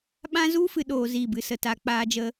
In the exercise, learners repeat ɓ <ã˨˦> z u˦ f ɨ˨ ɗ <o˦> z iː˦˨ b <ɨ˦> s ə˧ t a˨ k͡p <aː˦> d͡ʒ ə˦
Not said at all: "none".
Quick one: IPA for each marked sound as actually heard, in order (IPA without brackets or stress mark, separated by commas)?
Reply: ã˦, oː˦, ɨ˦, aː˦